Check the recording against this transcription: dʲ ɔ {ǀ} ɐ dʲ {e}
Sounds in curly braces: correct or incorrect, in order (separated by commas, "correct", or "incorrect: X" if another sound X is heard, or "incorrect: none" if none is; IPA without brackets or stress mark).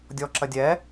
incorrect: ǁ, incorrect: ɛ